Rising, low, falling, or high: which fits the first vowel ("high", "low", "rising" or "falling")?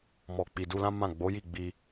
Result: low